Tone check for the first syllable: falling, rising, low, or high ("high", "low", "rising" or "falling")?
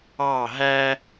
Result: falling